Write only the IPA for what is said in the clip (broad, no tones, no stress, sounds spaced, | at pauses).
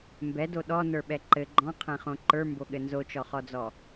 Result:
m b ɛ d o ɗ ɔ n ə˞ ɓ ɛ ǃ ɘ ɡ͡ǃ ɔ̃ qʰ ɛ̃ χ õ ǃ ə˞ m b o ɠ ɘ n z o t͡ʃ ɔ χ ɔ d͡z ɔ